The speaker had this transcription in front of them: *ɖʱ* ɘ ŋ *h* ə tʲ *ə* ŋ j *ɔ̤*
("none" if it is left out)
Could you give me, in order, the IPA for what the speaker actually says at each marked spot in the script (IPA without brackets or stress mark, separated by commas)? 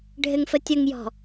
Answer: ɖʱ, f, ə, ɔ̤